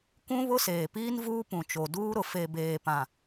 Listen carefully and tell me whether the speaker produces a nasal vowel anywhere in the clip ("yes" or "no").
yes